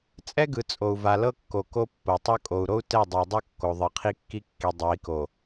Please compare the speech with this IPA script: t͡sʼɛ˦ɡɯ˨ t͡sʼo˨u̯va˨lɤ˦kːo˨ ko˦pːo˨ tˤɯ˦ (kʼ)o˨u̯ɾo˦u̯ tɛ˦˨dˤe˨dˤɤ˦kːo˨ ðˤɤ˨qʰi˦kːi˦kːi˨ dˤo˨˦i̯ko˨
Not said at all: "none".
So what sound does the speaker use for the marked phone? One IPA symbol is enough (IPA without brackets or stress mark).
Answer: kʼ